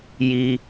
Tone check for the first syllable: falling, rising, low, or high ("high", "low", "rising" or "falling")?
low